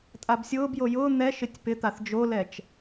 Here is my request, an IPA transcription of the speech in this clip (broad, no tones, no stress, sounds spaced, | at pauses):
tʼ a b sʲ ʊː b j o j ʊː n̪ ɛ ʃ ɪ tʲ p ɪ t̪ a θ d͡ʒ o l ɛ t͡ʃ